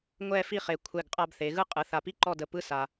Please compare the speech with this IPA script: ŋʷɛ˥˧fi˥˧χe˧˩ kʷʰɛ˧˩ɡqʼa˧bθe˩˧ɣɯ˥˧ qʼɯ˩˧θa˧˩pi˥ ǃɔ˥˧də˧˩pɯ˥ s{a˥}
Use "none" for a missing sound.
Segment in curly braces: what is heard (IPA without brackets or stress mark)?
a˧